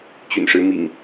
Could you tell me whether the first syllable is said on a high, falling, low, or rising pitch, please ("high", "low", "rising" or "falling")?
low